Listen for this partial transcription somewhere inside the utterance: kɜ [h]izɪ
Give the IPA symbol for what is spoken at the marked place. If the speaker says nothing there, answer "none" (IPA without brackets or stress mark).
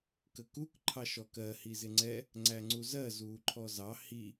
h